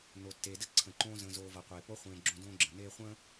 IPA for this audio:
n o˨ tː eː˨ d ə˥ ǀʰ ə̃˨ ǃ õː˥ z ə̃ː˨ z oː˨ v ʌ˩ qʷ eː˩ p o˥ χʷ ẽː˨ ɡ͡ǁ õ˦ d õː˥ ɡ͡ǁ ə̃˩ n eː˦ χʷ ə̃ː˥

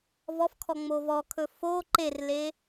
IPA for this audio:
v ɔ f kʰ ɔ ŋ͡m o v ɔ kʰ ɵ f o ǃ e r l e

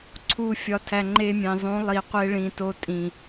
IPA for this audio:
ǀʰ u˨ fʲ ɒ˨ tʰ æ˨ ŋ͡ǃ e˧ mʲ ẽ˨ zˤ ũ˨˦ lˠ i˨ qʷ e˧ ɭ ĩ˨ t o˧ tʼ ĩ˨

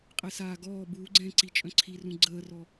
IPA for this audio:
qʼ e s aː ɡ ɔː b uː ɡ͡ǀ ɛ̃ː ǀ i t͡ʃʼ œ̃ ǀʰ i r ũ ɡ͡ǀ əː r ɔ

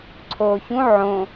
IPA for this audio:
ǀʰ oː ç ũ ʕ õ

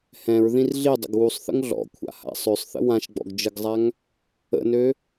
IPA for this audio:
h ɛ̃ ɹ ð ĩ r ɮ i dˤ ə̰ ɡ w u sˤ θ ə̰ ŋ ɮ ɔ̰ kʷʰ a̰ h a̰ sˤ ø sˤ θ ə̰ w ã ʃ ɡ͡b ɔ̰ ɡ d͡ʒ ə ɡ zˤ a ŋ | ə̰ n ø

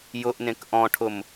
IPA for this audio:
j ʊ ʔ n ẽ k ʔ ɔ̃ ʈʰ ʊ m

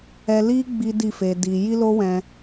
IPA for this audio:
ɛ˧ l i˦ ɡ͡b i˦ d i˦˨ f e˧ d i˧ j i˦ l o˦ w ɛ̃˧

